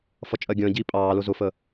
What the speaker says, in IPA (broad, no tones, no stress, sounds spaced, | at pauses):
f ʌ t͡ʃʼ ɜ ɡʲ ə̃ː ɟ iː pʼ ɑː l ʊ z ʊ f ə